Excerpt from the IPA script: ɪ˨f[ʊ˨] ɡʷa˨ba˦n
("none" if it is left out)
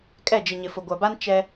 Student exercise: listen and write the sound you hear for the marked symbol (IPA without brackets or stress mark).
ʊ˨